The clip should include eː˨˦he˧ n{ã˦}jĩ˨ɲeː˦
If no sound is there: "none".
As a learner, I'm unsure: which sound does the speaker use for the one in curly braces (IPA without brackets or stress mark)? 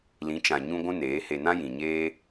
ã˦